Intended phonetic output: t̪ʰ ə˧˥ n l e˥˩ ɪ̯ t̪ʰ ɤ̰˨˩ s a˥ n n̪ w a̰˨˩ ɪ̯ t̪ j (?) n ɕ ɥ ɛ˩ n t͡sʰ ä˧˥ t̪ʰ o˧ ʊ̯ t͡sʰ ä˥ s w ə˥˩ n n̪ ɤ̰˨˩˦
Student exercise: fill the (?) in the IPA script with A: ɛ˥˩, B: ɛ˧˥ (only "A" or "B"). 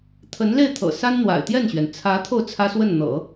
A